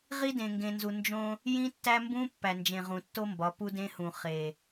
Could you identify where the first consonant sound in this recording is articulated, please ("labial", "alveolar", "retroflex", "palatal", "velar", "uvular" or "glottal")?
uvular